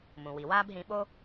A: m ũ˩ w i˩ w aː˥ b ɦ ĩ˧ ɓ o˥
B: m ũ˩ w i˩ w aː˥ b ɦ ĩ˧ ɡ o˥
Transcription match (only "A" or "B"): A